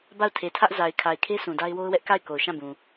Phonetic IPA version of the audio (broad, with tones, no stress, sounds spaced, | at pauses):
b a˦˨ ʊ̯ tʰ e˨ tʰ ä˦ ʔ z a˨ ɪ̯ kʰ a˨ ɪ̯ kʰ e˦ s ũ˨ d a˦ ɪ̯ w o˦ ʊ̯ w ɛ˦ ʔ k a˦˨ ɪ̯ k o˨ ʊ̯ ʃ ã˦˨ b ũ˨